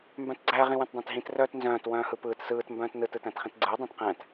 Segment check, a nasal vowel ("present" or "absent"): present